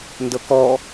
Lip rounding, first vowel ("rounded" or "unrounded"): unrounded